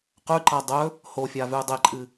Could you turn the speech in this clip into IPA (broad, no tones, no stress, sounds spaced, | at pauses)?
q ʉ ǃ a dˤ ɵ | h o fʲ a v ʉ dˤ e ǃʼ ɨ